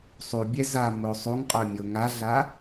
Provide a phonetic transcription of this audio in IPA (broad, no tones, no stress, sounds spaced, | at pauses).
sˤ u bʲ ɛ z a m o sˤ u ŋ qʼ œ mʲ o ŋ a ɮ a